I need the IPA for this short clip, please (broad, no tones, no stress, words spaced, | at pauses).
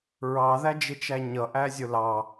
ɹɑðæd͡ʒɪt͡ʃæ ɲʌʔæzʲʊ lɑ